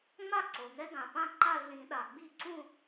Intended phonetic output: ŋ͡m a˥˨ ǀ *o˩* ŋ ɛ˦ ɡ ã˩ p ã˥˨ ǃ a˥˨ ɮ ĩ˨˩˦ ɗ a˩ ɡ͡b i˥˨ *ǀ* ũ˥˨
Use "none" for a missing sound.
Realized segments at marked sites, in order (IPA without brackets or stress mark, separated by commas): o˩, ǀ